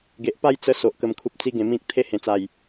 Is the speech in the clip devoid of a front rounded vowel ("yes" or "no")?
yes